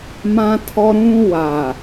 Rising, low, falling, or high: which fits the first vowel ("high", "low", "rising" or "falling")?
high